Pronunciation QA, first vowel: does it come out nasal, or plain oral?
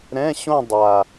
nasal